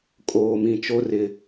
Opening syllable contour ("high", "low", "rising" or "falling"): low